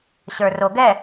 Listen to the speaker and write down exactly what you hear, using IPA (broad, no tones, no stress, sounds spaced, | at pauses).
ɕ ə˞ r o ɡ ɛ